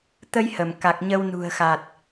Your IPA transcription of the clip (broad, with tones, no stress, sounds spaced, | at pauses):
t̪ ə˧ j h ə˧˩ m k a˨˩ k̚ ɲ ə˧ w n ṳ˨˩ ə̯ x a˨˩ t̚